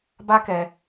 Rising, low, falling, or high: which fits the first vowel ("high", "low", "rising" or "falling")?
high